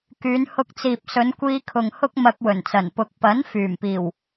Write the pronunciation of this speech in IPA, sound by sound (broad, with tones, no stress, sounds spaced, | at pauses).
k yː˨˧ n h ʊ˧ k̚ t͡s iː˨ p̚ s ɵ˨˧ n kʷ iː˧ kʰ ʊ˨ ŋ h ʊ˥ k̚ m ɐ˧ k̚ w ɵ˨˩ n t͡s ɐ˨˩ n p ʊ˨ k̚ p ɐ˨˥ n f yː˨˩ m p iː˨˩ w